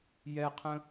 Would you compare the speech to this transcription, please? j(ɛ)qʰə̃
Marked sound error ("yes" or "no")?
no